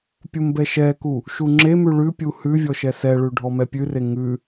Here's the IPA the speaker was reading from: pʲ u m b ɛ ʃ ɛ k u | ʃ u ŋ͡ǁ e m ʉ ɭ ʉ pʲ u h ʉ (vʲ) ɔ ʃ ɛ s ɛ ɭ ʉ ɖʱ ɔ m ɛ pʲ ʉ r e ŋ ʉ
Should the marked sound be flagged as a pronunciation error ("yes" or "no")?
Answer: no